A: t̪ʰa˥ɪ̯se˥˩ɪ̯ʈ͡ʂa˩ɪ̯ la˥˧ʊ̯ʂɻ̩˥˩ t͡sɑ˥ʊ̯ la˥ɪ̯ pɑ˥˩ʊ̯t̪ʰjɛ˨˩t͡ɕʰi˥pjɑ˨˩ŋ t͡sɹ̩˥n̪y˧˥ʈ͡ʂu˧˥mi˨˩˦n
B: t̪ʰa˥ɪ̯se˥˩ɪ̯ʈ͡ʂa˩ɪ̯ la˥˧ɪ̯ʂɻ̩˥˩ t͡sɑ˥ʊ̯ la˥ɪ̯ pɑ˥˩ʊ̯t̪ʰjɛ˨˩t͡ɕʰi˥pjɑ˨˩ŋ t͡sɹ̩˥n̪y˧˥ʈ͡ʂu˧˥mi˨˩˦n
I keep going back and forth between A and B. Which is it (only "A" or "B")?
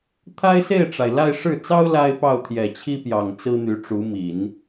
B